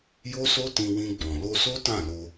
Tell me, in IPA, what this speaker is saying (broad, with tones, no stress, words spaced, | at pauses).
jo˦so˦ tĩ˧wĩ˧ɡ͡bɔ̃˨ lo˧so˦ tã˦˨lo˧